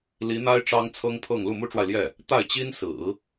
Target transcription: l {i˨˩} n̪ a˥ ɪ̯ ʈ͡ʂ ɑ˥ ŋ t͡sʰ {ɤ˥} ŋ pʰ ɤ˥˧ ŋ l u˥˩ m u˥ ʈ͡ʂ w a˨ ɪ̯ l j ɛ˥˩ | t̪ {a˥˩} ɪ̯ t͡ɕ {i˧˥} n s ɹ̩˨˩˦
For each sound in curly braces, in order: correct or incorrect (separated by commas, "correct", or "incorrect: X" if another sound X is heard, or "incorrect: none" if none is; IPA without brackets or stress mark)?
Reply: incorrect: i˧˥, correct, correct, incorrect: i˥